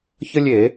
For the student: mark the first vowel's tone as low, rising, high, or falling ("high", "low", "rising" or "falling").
high